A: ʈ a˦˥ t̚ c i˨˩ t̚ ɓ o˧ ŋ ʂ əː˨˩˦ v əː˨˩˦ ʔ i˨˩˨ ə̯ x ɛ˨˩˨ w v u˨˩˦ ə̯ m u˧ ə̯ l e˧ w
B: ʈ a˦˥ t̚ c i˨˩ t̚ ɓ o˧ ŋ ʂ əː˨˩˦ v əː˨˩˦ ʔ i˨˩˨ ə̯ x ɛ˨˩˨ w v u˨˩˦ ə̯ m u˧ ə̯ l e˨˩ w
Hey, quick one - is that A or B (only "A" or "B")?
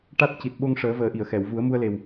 B